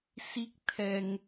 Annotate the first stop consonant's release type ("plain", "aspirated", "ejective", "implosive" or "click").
plain